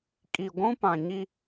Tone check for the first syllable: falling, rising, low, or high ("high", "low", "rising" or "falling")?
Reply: low